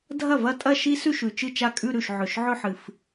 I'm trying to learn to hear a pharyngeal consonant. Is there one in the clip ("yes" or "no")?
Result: yes